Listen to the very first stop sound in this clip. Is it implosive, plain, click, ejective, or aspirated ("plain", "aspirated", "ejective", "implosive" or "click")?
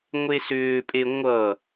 ejective